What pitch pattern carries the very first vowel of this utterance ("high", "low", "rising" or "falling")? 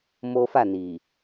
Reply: high